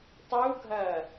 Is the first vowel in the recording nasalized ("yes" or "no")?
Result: no